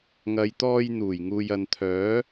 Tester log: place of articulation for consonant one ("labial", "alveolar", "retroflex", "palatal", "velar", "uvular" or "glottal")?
velar